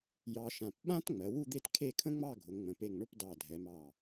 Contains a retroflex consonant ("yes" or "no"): yes